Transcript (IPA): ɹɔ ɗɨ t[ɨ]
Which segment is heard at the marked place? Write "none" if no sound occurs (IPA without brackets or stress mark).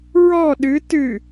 ɨ